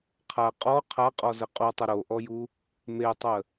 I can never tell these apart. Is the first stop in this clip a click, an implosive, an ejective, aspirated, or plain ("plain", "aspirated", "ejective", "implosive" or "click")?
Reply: aspirated